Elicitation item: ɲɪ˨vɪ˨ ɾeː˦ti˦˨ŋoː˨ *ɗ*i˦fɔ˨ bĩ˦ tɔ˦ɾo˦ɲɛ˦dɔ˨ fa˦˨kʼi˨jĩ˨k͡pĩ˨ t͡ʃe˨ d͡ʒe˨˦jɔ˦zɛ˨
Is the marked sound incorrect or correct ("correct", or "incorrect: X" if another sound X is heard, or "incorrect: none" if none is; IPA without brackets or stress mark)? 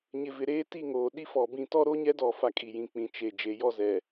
correct